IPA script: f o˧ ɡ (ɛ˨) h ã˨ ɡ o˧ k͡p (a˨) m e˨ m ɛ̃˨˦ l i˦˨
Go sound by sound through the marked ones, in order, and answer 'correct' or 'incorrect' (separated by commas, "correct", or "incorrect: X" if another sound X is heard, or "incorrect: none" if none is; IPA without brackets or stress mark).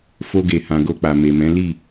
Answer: incorrect: e˨, correct